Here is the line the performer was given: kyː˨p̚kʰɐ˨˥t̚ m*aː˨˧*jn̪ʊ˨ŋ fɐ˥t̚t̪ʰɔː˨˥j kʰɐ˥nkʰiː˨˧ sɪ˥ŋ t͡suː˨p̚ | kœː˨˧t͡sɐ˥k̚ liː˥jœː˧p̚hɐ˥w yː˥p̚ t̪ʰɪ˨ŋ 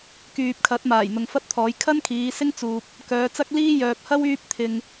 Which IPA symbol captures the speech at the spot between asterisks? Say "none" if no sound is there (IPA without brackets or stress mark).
aː˨˩